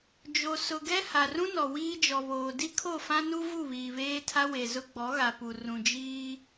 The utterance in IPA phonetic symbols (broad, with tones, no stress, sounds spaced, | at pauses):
d͡ʒ o˨ s ʊ˨ ɡ ɛ˦ h a˨ r ũ˦ n ɔ˨ w iː˦ d͡ʒ ɔ˨ β oː˨ d i˦ kʰ o˦˨ f ã˦ n u˦ v u˦˨ β iː˨ β eː˦ tʰ a˦ w e˨ z ʊ˦ ɡ͡b ɔ˨˦ ɣ a˨ p u˨ r ũ˨ d͡ʒ iː˦